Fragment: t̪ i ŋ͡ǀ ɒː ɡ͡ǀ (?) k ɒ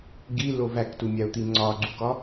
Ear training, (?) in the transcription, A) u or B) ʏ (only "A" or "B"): A